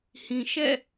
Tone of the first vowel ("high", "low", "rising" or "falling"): low